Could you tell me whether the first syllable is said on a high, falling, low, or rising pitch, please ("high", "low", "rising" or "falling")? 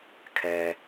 low